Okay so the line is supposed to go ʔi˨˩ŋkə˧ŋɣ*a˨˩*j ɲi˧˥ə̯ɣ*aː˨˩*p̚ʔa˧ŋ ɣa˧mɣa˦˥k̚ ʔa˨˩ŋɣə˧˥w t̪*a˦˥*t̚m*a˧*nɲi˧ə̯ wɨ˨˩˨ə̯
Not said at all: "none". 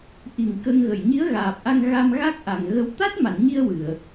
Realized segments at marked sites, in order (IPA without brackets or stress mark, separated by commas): ə˨˩, aː˨˩, a˦˥, a˨˩˨